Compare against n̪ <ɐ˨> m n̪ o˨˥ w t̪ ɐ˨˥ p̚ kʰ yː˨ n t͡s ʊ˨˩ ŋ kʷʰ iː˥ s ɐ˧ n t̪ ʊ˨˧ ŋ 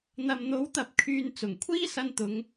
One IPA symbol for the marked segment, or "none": ɐ˨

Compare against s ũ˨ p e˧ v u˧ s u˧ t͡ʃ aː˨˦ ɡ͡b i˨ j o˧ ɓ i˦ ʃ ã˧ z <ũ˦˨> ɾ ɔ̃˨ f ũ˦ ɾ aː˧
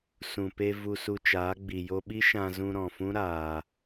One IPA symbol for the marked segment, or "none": ũ˧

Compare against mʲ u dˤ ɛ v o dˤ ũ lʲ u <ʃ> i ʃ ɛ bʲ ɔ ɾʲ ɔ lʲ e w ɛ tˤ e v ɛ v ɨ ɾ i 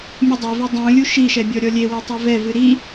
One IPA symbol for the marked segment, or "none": ʃ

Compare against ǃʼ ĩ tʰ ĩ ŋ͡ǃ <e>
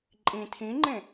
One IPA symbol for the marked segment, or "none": ẽ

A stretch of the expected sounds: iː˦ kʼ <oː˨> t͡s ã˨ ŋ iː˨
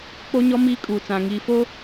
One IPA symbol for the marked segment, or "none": uː˨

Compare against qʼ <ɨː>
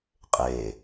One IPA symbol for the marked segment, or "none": eː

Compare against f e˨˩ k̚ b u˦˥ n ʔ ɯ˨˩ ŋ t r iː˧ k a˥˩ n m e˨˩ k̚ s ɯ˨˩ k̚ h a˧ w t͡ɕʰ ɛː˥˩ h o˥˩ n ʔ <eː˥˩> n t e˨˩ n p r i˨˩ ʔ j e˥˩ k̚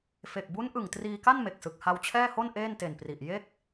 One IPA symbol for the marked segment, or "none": eː˥˩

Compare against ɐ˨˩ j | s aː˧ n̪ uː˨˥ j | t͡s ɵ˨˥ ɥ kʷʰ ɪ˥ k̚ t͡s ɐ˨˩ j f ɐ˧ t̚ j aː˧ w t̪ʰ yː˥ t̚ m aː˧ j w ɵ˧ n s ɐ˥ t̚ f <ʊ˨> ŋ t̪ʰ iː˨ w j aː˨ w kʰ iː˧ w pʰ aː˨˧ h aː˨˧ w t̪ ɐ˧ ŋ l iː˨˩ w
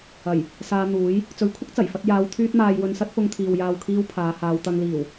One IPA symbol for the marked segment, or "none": ʊ˧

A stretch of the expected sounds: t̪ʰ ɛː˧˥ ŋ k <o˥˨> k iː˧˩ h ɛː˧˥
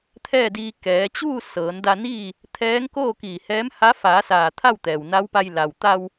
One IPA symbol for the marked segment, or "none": oː˥˨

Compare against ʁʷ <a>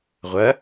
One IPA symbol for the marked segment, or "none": ɐ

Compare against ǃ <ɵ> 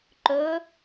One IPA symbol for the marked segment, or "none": ɵ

